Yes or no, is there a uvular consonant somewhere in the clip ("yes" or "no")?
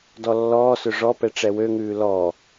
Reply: no